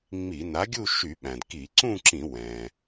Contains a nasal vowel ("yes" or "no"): yes